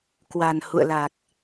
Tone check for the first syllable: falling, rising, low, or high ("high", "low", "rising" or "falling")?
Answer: low